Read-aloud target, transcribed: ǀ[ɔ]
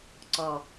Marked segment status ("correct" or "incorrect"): correct